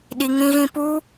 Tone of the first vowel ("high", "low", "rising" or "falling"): low